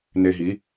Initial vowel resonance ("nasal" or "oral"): oral